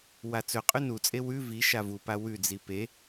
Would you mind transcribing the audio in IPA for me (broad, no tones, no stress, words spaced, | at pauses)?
wat͡sɵqʼʉ nut͡sʼe wʉ vi ʃavupa wʉd͡zi pe